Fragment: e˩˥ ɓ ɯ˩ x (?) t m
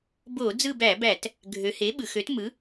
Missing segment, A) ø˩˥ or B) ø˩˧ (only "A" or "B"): A